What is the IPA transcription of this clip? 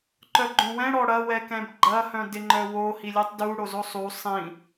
ǃ œ ɡ͡ǃ õ w ɛ̃ ɽ ɔ ɽ ɐ w ɛ k ɛ̃ b ɡ͡ǃ ɐ h œ̃ d ɪ ŋ͡ǃ œ w o h i lʲ ɯ tˤ d u ɽ o z o sˤ u sˤ ĩ

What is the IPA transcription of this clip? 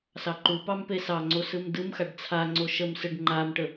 s ɑ ǃ u p ɑ m p e s ɑ ŋ͡ǀ o s ɯ m d ɯ m x a ɖ t͡sʰ a ŋ͡ǀ o ʃ ə m s ɯ ɖ ŋ͡ǃ a m ʈ ə

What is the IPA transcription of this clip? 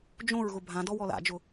d͡ʒ õ ɹ ɣ ʊ bʱ ã d ɔ w ɔ l a̰ d͡ʒ ʊ

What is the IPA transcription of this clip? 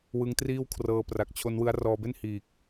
w ɯ˦˥ ŋ t r iː˥˩ w kʰ r ɤː˧ p r a˨˩ k̚ t͡ɕʰ o˦˥ n w ɯ˦˥ a̯ r ɔː˧ b e˥˩ n h iː˨˩ k̚

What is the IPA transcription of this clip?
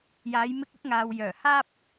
j aː˨˧ j m ɪ˧ k̚ ʊ˨˥ k̚ ŋ aː˨ w j œː˨˩ h aː˥ p̚

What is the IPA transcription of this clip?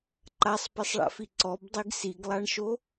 ǃ a sˤ p e sˤ ɭ a̰ f i ǀ ɔ b dˤ i ɡ s i ɡ lˠ a ɳ ʃ o

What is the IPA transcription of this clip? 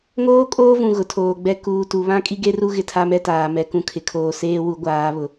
ŋ oː˦ kʼ oː˦ v ũ˨ ɣ ʊ˨ tʰ oː˨ ɡ͡b ɛ˦ k uː˨ t u˨ β ã˦ kʼ i˦ ɡ e˦ r u˦ ɣ ɪ˦ tʰ a˦ m ɛ˦ t aː˨ m ɛ˨ k ũ˦ kʰ ɪ˨ kʰ oː˦˨ s eː˦ w u˨˦ ɡʷ aː˨˦ β ʊ˨

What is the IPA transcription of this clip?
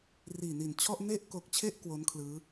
r iː˨˩ n i˨˩ n t͡ɕʰ ɔ˥˩ ʔ n e˥˩ ʔ k o˨˩ k̚ t͡ɕʰ e˥˩ ʔ k w o˦˥ n kʰ l ɯː˦˥

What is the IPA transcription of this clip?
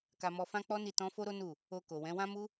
k a˧ m ɔ˧ f ã˦ k͡p ɔ˦ n i˦˨ t ɔ̃˧ f o˦ ɾ o˦ n u˦˨ | o˧ k o˨ w ɛ̃˨˦ w ã˦ m u˦

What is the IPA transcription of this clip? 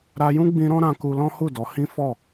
ɾ a˧ j ũ˦ ɡ͡b ĩ˧ ɾ ɔ̃˦ ɾ ã˧ k u˧ l ɔ̃˦ h u˦˨ d ɔ˨˦ h ĩ˦ f ɔ˦˨

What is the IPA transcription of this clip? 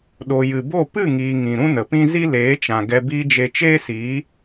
ɗ o˨ j ɨ˨ b o˦˨ p ɨ˦˨ ŋ iː˨ ŋ ĩ˨ ɾ ũ˦ n ə˨ p ĩ˦ z i˦ l eː˨˦ t͡ʃ ã˨ ɡ ɛ˧ b iː˧ d͡ʒ e˨ t͡ʃ eː˦ s iː˨˦

